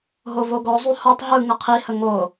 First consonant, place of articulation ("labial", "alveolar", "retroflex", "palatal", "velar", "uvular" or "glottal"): glottal